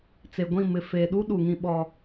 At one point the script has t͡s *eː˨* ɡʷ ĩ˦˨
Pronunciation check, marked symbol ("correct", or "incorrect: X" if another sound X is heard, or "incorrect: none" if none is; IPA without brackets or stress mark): incorrect: e˨